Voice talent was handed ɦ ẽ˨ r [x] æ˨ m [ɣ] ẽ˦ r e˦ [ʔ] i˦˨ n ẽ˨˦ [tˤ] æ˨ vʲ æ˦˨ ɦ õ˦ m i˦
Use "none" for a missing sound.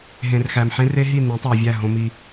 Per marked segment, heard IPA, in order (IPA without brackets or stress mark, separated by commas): x, ħ, ɦ, tˤ